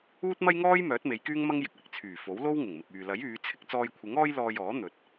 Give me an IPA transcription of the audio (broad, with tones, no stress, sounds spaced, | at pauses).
uː˥ t̚ m ɐ˥ j ŋ ɔː˥ j m œː˨˥ t̚ m e˨˧ j k yː˥ ŋ m ɐ˥ ŋ j ɪ˨ k̚ w ɪ˨ k̚ t͡sʰ yː˨˩ f o˨˥ w l o˥ w ŋ ɪ˨˩ ŋ m ɪ˨ k̚ yː˨ l ɐ˨˥ j yː˨˧ t͡sʰ ɪ˧ k̚ t͡s ɔː˧ j kʷʰ ɪ˨˥ ŋ ɔː˥ j l ɔː˧ j ɔː˨˥ n̪ ɵ˨ t̚